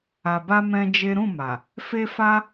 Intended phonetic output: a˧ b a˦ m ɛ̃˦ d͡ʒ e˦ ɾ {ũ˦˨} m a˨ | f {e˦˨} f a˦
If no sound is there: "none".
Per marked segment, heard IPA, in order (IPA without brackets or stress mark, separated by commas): ũ˦˨, e˦